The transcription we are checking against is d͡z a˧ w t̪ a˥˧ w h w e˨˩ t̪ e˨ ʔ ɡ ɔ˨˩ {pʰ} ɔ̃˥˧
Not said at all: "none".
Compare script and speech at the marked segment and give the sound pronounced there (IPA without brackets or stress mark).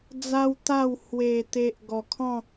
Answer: kʰ